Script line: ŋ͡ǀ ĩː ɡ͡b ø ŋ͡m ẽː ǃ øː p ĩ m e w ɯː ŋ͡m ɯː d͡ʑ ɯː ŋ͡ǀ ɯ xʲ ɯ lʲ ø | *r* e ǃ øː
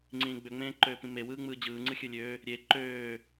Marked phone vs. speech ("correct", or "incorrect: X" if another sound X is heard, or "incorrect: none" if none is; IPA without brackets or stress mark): incorrect: ɾʲ